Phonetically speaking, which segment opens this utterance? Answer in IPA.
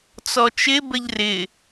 t͡s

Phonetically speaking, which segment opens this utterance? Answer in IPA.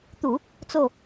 t̪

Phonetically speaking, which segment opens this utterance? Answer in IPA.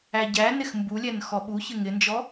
æ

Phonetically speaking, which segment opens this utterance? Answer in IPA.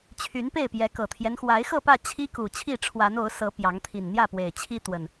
t͡ɕʰ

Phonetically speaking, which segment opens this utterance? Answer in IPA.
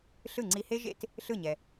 ɬ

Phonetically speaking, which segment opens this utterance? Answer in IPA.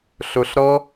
ɬ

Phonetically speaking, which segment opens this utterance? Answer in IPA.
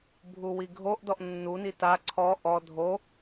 bʱ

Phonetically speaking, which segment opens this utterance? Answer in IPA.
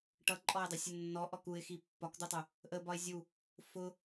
ʈ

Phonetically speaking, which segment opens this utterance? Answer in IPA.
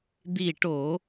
d̪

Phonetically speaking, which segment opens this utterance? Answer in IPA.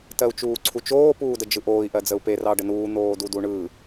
t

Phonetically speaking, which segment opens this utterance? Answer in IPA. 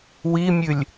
w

